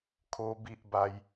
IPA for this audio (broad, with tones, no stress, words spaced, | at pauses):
kʰo˦bi˦ʔba˦j